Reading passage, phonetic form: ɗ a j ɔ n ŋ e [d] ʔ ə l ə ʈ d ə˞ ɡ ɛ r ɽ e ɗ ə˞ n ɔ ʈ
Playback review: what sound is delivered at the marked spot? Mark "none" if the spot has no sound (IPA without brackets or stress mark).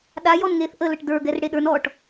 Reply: θ